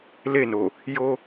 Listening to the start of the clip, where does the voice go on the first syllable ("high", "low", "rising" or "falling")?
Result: falling